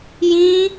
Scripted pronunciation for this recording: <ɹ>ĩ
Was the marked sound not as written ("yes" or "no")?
yes